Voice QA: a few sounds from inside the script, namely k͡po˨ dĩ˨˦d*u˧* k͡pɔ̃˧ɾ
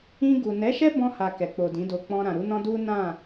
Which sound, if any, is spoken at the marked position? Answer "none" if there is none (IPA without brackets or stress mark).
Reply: o˧